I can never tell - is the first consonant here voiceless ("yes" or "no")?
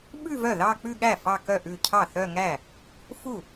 no